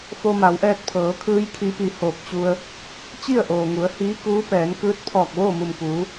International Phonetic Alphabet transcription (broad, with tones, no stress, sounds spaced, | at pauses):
f o˧ m a˩˧ w ʔ ɛː˧ t̚ pʰ ɤː˩˧ kʰ ɯː˧ j kʰ i˧ p i˧˩ h oː˧˩ k̚ t͡ɕ u˧ ə̯ | t͡ɕ i˥˨ ə̯ ʔ oː˩ ŋ u˩˧ ə̯ h iː˧˥ k uː˧˥ p ɛː˩˧ n k ɯː˧˥ t̚ pʰ ɔː˧˩ k̚ ʋ oː˥˨ m u˧˩ m k uː˩˧